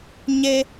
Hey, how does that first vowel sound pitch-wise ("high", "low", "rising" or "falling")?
high